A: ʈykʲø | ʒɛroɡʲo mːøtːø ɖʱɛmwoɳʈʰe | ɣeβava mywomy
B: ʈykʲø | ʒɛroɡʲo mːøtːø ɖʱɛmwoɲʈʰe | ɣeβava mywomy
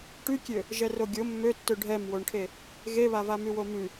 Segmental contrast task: A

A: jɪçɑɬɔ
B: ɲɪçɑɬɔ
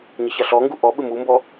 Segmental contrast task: B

